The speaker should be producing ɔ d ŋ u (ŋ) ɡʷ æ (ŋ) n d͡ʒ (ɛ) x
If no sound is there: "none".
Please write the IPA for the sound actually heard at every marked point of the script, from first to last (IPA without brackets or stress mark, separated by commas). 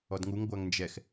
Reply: ŋ, ŋ, ɛ